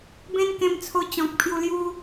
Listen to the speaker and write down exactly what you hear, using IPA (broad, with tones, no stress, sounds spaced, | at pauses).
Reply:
b ẽ˦ n k ẽ˧ m t͡sʰ o˧ t͡ɕ ɔ̃˨ k̚ pʰ j u˧ l j u˦